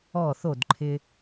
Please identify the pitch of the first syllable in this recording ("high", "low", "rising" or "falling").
falling